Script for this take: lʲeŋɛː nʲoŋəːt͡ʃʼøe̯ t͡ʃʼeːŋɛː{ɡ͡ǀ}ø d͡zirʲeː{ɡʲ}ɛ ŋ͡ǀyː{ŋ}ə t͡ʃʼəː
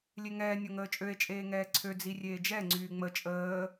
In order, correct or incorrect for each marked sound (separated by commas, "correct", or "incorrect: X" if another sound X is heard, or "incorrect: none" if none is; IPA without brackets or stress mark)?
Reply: incorrect: ǀʰ, incorrect: d͡ʒ, incorrect: ŋ͡m